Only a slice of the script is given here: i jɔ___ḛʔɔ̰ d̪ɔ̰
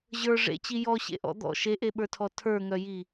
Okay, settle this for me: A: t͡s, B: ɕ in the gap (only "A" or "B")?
B